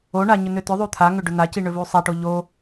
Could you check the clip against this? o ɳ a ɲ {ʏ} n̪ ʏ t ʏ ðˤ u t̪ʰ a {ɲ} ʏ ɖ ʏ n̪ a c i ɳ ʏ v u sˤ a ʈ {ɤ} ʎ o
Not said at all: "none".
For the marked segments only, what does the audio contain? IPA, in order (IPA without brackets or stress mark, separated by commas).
ʏ, ŋ, o